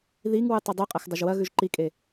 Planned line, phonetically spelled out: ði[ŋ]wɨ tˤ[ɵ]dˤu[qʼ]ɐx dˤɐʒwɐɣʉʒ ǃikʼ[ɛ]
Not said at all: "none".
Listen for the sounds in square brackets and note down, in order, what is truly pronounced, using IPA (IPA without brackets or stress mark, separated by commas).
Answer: ŋ, ɵ, qʼ, e